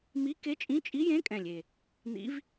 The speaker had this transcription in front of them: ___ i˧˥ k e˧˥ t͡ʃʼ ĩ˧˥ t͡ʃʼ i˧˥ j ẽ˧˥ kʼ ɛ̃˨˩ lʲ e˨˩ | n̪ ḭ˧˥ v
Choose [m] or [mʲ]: m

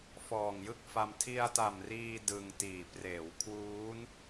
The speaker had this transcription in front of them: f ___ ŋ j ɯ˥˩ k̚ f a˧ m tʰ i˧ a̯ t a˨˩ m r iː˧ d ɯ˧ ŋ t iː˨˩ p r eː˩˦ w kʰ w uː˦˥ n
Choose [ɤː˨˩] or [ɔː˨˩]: ɔː˨˩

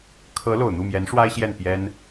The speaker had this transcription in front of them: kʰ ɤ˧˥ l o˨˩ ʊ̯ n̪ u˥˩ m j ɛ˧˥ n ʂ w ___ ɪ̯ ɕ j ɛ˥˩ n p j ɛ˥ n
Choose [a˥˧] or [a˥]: a˥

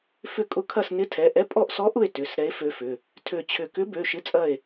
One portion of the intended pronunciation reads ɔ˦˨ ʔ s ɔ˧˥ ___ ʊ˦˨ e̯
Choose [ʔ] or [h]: ʔ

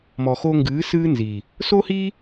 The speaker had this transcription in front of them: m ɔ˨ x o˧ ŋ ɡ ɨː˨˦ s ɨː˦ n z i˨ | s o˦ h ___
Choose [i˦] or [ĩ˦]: i˦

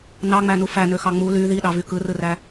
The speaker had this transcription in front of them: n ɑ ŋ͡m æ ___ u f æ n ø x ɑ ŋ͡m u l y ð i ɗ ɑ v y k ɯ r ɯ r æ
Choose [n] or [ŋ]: n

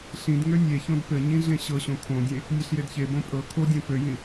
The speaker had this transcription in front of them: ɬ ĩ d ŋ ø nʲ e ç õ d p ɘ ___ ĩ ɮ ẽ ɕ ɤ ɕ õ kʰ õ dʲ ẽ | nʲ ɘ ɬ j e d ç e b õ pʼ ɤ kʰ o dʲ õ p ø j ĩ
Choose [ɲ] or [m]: ɲ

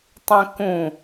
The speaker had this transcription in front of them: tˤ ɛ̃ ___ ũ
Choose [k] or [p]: k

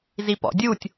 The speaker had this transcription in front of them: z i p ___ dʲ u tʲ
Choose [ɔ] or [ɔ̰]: ɔ̰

